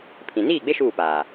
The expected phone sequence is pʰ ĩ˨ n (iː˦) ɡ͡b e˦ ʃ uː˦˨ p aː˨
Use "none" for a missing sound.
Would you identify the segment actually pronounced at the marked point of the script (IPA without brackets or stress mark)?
iː˦˨